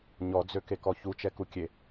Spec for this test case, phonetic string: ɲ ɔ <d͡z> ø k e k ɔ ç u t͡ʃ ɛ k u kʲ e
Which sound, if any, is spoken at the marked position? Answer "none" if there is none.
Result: d͡z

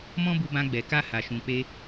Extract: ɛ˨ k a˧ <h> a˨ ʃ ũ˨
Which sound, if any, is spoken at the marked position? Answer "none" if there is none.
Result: h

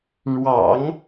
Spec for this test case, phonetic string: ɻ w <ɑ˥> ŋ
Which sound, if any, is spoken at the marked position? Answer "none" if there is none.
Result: ɑ̰˨˩˦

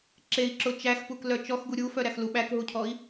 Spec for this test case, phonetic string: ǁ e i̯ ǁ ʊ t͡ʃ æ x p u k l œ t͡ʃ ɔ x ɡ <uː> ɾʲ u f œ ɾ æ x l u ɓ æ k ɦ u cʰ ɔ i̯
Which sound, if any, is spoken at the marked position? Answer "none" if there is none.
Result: u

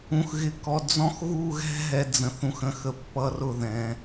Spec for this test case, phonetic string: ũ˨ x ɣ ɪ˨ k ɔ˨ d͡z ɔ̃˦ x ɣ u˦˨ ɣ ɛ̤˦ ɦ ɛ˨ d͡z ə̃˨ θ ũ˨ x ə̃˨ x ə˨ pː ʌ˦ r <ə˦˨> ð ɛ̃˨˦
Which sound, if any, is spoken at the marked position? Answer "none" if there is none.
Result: ʊ˦˨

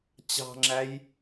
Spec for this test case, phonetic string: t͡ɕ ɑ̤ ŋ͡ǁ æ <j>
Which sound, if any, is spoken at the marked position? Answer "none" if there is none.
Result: j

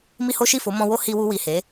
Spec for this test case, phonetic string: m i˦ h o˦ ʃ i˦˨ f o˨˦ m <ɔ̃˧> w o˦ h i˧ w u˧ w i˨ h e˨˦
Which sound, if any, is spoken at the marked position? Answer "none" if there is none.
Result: ɔ̃˧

